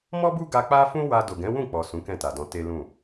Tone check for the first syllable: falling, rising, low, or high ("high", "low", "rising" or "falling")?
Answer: high